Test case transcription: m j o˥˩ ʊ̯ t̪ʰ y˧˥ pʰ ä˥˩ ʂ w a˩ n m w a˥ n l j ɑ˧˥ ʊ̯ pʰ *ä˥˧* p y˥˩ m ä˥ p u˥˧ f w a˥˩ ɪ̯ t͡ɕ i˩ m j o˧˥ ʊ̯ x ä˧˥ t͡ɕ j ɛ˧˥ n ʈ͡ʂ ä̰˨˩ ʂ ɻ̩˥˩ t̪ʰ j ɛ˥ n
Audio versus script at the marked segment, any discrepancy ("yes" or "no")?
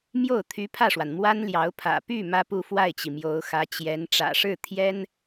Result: yes